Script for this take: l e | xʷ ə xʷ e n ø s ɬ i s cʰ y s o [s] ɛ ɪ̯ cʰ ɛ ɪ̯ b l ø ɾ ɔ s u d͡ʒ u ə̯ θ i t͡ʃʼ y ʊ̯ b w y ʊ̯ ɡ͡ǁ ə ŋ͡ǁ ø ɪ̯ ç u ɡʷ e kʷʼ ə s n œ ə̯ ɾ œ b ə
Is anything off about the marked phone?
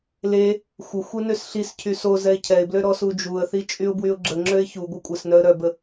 yes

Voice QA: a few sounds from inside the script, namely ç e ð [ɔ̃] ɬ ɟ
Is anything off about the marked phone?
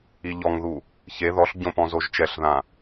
yes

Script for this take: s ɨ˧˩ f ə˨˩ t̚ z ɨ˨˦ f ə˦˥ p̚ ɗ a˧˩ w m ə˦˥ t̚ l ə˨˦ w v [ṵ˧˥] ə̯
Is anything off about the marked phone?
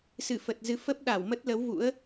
no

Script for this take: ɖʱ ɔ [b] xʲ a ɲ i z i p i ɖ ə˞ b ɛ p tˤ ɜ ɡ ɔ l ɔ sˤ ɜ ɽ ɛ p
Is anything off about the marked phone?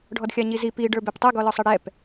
yes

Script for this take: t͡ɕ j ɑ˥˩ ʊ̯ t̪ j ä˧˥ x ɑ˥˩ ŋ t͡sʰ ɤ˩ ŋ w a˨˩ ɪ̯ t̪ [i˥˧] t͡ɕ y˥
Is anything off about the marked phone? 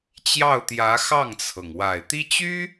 yes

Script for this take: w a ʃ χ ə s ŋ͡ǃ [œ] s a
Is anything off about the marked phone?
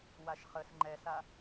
yes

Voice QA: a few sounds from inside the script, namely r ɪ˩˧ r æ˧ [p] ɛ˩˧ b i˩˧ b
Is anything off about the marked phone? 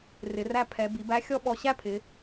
yes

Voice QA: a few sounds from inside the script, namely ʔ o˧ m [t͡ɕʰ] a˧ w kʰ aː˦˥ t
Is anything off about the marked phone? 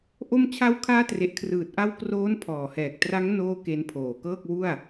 no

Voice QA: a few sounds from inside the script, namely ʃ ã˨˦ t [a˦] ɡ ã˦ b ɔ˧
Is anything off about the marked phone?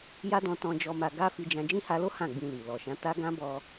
no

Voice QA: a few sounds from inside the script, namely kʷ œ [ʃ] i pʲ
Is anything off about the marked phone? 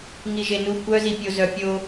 yes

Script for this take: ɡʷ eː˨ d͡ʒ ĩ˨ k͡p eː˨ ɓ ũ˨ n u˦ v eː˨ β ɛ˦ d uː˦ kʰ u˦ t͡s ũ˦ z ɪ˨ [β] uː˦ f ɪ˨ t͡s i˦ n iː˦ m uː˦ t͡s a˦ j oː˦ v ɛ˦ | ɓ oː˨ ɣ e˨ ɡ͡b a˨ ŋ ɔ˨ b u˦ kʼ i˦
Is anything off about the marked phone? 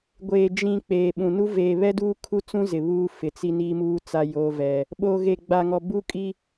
no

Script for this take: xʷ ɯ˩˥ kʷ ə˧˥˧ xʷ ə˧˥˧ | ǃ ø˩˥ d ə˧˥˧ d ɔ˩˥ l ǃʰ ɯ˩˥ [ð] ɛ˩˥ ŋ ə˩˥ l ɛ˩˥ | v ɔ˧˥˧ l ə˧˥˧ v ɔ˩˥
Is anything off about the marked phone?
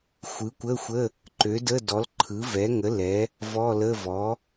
yes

